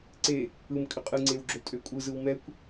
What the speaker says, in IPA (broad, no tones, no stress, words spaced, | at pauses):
ǀe | ɯm kʼʏqʼɯŋ͡ǀew ɡ͡ǁɵltʼøkʷʼɯzɯw mɛkʷ